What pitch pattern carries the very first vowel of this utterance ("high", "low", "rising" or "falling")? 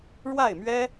falling